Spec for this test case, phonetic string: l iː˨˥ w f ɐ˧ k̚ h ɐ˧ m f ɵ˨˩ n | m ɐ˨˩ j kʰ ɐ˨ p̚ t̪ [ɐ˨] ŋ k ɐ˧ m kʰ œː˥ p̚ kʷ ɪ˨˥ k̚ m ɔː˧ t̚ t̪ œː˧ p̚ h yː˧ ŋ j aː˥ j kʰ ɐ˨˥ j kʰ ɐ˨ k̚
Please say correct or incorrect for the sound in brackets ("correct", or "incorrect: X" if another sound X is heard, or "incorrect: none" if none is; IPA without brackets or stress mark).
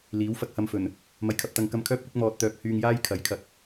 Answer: incorrect: ɐ˨˧